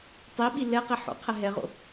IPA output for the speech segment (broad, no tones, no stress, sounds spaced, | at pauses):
tˤ i ɓ i l ɛ q i ħ o̰ qʰ ɛ ɦ ɛ ʁ o̰